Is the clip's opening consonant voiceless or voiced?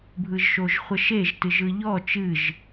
voiced